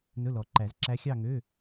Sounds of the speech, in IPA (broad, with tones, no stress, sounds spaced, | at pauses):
n ɵ˧˥˧ l ɔ˨ ǃ æ˨˩˦ z ǁ æ˧˥ xʲ ɑ˥˧ ŋ øː˧˥˧